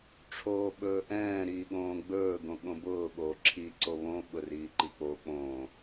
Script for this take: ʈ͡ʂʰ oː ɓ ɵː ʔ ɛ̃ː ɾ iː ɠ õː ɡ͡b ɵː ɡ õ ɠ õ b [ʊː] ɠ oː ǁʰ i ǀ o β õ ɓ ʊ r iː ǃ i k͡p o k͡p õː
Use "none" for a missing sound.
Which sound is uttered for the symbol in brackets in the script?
ʊː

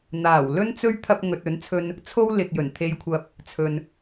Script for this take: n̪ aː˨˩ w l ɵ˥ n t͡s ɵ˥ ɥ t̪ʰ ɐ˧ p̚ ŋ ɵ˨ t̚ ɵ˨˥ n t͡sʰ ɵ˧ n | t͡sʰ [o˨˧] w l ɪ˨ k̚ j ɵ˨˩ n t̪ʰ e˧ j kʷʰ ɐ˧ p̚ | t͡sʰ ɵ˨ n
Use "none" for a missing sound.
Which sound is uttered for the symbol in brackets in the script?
o˥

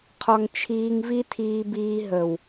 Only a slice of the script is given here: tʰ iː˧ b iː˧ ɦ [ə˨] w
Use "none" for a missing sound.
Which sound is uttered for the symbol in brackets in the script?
ə˨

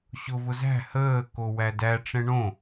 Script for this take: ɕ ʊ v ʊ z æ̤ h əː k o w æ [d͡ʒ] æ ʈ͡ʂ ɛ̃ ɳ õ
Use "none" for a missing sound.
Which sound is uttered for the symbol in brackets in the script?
d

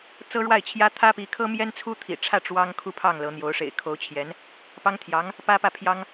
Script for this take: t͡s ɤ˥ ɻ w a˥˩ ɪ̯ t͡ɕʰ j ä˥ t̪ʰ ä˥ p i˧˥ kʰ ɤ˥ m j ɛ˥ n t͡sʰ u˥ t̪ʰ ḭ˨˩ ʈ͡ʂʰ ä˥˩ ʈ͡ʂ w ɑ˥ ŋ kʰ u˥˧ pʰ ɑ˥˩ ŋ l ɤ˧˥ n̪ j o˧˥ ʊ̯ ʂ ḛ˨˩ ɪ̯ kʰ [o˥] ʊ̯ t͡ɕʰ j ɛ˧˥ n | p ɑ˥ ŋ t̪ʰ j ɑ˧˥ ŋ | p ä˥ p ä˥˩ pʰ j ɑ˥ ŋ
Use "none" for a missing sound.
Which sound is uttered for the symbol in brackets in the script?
o˧˥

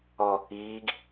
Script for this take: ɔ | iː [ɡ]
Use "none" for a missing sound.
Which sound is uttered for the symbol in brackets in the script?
ɡ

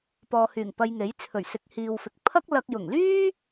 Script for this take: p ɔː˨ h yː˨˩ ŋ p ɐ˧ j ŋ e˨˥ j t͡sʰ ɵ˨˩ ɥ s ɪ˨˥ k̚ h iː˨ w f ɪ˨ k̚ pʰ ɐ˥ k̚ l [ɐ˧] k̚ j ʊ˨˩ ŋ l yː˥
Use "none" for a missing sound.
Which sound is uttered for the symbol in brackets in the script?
ɐ˧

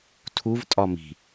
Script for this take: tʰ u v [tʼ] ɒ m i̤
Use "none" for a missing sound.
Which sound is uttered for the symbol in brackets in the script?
tʼ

